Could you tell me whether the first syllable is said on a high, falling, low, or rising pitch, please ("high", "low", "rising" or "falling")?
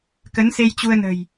rising